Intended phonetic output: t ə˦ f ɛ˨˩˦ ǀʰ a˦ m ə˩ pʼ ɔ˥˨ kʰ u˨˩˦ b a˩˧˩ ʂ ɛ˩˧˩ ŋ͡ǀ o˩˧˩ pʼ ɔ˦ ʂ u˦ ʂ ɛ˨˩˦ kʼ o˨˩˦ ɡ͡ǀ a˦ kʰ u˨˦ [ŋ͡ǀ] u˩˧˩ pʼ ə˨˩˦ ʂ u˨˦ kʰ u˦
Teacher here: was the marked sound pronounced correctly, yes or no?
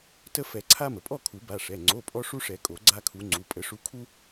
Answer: yes